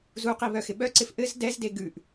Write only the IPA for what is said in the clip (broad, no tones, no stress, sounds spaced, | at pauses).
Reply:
z u q i β œ x ɪ ɓ œ ǀ ɪ f ʔ ɘ z d ɛ z d e ɡ ʉ ʔ